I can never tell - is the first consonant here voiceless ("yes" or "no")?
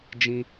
no